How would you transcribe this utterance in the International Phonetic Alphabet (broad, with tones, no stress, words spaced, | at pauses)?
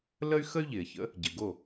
lə˥y̯ xə˥y̯ʎɪː˩çə̰˩˥ | ɟɪ˩ɡo˥˩